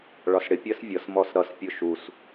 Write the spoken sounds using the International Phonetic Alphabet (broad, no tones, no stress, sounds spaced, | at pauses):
ɭ ɒ s ɽ ɪ pʲ ɜ s vʲ ʌ s m ɔ s ɾ ʌ s pʲ ʊ ʃ u s